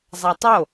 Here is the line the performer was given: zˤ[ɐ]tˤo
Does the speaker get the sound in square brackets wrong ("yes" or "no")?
yes